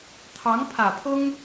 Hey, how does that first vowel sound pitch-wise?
rising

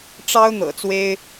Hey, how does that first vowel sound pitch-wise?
high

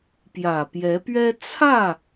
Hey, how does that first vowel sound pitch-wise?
low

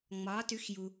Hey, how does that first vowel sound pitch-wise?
rising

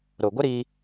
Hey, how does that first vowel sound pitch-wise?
low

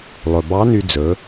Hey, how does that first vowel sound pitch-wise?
low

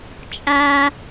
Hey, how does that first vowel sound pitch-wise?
high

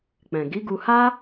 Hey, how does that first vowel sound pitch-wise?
low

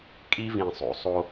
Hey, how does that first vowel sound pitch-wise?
high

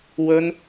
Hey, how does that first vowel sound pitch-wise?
high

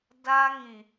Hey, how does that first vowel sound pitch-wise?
high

